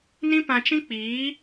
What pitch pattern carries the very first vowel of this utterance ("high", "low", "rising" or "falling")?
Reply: high